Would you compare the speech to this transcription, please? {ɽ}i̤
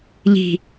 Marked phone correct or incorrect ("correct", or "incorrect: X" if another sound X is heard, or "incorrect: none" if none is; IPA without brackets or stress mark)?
incorrect: ʎ